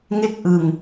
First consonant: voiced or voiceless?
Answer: voiced